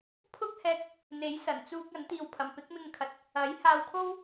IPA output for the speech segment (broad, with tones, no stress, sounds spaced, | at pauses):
pʰ ʊ˥ k̚ h ɛː˧ k̚ | n̪ e˨˥ j s ɐ˨˩ n t͡s uː˧ k̚ ɐ˨˥ n t̪ iː˧ w pʰ ɐ˨ m p ɪ˨˥ k̚ m ɪ˧ ŋ kʰ ɐ˨ t̚ | ɐ˨˥ j h aː˧ w kʰ o˥ w